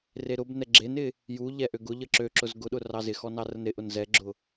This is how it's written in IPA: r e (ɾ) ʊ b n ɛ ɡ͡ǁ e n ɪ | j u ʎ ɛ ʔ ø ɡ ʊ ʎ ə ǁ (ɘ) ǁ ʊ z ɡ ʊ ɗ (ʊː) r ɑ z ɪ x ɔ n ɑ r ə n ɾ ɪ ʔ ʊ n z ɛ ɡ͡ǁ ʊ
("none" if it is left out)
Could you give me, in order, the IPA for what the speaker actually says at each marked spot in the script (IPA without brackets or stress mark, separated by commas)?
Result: ɾ, ø, ʊ